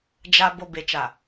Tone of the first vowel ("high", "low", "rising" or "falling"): low